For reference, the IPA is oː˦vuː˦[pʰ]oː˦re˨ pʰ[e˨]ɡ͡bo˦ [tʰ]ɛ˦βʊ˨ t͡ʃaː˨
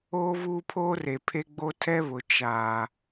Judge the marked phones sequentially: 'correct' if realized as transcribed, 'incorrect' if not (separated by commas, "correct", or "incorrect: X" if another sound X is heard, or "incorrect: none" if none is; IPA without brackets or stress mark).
correct, incorrect: e˦, correct